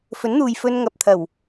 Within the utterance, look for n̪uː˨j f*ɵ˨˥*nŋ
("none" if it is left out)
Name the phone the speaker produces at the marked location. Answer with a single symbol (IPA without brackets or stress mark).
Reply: ɵ˧